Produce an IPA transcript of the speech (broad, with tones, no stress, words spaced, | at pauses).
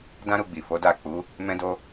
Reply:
dã˦ɾu˧ ɡ͡bi˨fo˨˦ da˦˨ k͡pu˨˦ | mɛ̃˦do˦